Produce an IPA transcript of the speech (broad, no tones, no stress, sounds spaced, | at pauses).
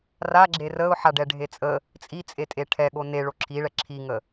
r a ɡ͡ǁ e r ə ʊ̯ ħ a ɖ ɛ ɖʱ e t͡sʼ ə | t͡sʼ i t͡sʼ e tʼ e ʈʰ ɛ ɠ o n e ɭ o ǁʰ i ɭ ɛ ǁʰ i ŋ ə